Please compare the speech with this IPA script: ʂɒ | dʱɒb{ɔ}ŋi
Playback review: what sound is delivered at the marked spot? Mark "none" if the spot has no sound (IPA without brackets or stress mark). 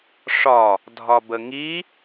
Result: ə